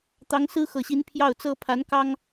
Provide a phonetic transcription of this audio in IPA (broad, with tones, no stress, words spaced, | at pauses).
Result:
t̪ɑ˧˥ŋsɹ̩˥xɤ˨˩ɕi˧˥n pʰjɑ˥˩ʊ̯t͡sɤ˥ pʰa˧˥nkɑ˥ŋ